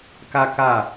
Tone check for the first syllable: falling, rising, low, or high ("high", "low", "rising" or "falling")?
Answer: high